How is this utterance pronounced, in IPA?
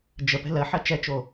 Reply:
d͡ʒ ə p ɛ̤ l ɜ ħ ɜ t͡ʃ ɛ t͡ʃ o

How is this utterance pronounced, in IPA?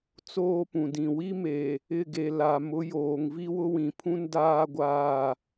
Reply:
t͡s oː˦ p ũ˨ d ĩ˨ w i˦ m e˨ | ɪ˦˨ ɡ e˨ l a˨ m ʊ˨˦ j oː˨ ŋ v i˦ w ʊ˦ w ĩ˨ pʰ ũ˦ n d aː˦ ɡʷ aː˦˨

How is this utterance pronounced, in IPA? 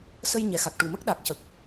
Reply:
s ə˧ j ɲ ɛ˨˩ x a˨˩ k̚ ʈ u˨˩ m ə˦˥ k̚ ɗ a˨˩ k̚ c ə˨˩ k̚

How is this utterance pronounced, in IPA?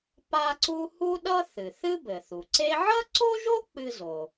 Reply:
p a˥ ǀ u˥ h u˥ ɗ ʌ˥ θ ɨ˩ θ ɨ˥ b ɘ˩ θ u˩ ǀ e˥ ʕ ʌ˥ ǀ o˥ ʒ o˥ k͡p ɨ˥ z o˩

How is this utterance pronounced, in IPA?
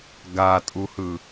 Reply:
ɡ a tʼ u h ɯ

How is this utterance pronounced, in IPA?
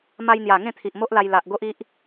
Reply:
m a˧ j n̪ j a˨˩ ŋ ẽ˥˧ t̪ʰ i˨ ʔ m o˦ ʔ l a˧ j l a˨ ʔ ɡ o˦ ʔ i˦ ʔ

